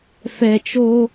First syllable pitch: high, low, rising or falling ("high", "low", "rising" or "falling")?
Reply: low